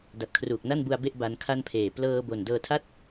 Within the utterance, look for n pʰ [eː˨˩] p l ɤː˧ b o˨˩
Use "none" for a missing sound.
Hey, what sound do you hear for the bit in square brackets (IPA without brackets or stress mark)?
eː˨˩